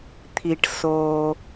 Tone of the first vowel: low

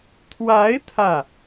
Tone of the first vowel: rising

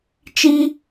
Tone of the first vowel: high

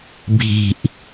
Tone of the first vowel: low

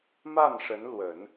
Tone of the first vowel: falling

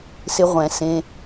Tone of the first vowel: rising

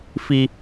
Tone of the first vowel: high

